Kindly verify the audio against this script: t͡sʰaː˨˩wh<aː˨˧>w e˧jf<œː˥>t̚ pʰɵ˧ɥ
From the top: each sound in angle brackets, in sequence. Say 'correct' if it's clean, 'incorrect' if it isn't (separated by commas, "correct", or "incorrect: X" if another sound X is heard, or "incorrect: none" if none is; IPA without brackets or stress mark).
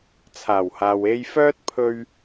incorrect: aː˨, correct